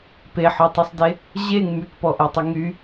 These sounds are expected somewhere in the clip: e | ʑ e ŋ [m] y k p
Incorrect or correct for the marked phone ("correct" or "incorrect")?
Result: correct